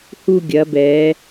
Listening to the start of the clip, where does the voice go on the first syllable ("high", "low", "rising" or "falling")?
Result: falling